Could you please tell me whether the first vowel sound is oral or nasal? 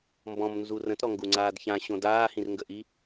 nasal